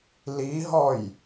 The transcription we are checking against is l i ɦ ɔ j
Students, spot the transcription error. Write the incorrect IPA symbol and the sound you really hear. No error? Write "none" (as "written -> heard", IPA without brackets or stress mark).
none